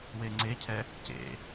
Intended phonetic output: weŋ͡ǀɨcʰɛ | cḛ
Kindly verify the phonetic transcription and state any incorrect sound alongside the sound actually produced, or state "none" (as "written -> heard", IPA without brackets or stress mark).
ɨ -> e